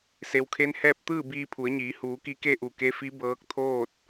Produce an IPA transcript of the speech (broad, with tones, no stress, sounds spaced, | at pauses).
s e˩ w kʰ e˧˥ n h ɛː˥˨ p̚ t̪ ɯː˥˨ b iː˧ pʰ u˩˧ ə̯ ɲ iː˩˧ h uː˩˧ k i˧˥ k e˥˨ ʔ u˧˩ k e˧˥ f i˧˥ b ɤː˧˥ k̚ t̪ʰ oː˥˨ t̚